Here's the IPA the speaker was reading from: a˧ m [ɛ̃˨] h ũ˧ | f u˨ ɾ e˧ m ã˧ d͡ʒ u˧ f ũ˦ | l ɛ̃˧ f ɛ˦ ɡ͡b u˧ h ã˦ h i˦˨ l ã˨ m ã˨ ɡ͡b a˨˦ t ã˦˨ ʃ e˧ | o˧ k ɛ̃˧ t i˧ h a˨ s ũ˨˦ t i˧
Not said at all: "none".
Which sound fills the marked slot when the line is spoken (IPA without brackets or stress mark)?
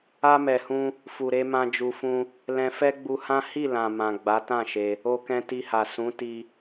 ɛ˨